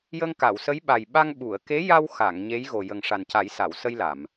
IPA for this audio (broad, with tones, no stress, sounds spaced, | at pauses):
j ə˧ ŋ k a˨˩˨ w s ə˧˥ j ɓ a˨˩ j ɓ a˧ ŋ ɓ u˨˩˨ ə̯ k e˧˥ j a˧ w x a˨˩˨ ŋ ɲ e˧˥ j ɣ o˨˩ j ə˨˩ ŋ ʂ a˨˩ n c a˨˩˦ j s a˨˩˨ w s ə˧ j l a˨˩˨ m